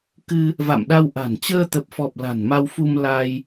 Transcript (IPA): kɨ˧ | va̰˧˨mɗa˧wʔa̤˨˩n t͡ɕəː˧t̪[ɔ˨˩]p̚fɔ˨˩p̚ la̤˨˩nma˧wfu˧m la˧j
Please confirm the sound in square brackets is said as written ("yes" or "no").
no